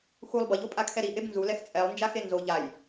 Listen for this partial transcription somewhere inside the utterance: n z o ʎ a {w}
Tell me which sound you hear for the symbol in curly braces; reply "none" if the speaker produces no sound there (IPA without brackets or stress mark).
j